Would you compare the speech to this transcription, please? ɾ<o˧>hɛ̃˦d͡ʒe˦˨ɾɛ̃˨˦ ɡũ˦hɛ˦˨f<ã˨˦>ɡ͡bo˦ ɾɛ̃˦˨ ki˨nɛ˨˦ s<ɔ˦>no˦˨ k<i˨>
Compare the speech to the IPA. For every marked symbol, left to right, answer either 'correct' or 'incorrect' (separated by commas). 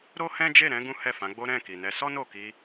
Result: incorrect, correct, correct, incorrect